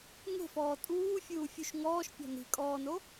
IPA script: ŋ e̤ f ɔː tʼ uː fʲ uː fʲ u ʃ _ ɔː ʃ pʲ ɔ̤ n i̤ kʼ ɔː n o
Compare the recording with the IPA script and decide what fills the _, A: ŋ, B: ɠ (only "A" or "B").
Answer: A